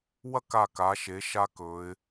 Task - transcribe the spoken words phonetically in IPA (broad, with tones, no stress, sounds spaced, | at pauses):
w ɐ˥˧ k a˧˩ k a˩˧ ʃ e˩˧ ʃ a˦˥ k ɵ˩˧ ɪ̯